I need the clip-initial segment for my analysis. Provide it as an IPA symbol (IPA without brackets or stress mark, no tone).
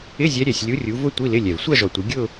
ɪ